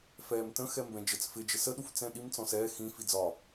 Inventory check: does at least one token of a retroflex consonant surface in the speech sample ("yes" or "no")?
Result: no